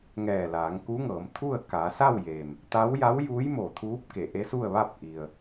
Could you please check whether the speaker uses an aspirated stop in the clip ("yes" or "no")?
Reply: yes